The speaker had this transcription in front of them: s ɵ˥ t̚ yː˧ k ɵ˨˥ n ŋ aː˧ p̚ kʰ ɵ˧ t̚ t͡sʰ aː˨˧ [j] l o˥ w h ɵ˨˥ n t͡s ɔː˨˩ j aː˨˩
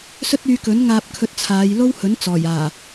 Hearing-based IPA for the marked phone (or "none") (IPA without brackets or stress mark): j